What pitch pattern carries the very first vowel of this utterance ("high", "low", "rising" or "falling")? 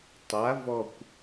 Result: rising